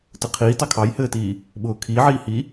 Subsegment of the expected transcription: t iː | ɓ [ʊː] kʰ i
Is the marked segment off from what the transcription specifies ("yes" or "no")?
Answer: no